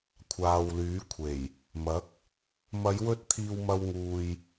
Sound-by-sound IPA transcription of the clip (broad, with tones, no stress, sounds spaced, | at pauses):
kʷʰ aː˨ w l yː˨˥ kʷʰ e˨˩ j | m ɐ˨˥ k̚ | m ɐ˨˧ j w ɵ˧ t̚ t̪ʰ iː˧ w m ɐ˧ w ŋ uː˨ j